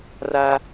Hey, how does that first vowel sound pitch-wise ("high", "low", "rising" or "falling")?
high